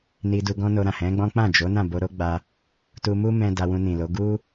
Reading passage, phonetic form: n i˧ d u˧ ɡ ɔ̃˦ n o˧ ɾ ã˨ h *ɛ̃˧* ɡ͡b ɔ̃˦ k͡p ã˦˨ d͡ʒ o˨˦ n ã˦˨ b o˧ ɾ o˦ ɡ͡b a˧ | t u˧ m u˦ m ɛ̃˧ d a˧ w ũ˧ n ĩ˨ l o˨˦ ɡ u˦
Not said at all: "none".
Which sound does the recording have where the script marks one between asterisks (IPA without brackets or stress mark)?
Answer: ɛ̃˨˦